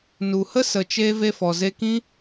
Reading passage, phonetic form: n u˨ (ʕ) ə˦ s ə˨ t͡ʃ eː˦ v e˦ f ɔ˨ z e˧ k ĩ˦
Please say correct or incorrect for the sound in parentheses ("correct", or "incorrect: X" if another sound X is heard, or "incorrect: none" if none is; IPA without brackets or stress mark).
incorrect: h